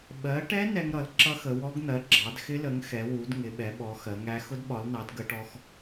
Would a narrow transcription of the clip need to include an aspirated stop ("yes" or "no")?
no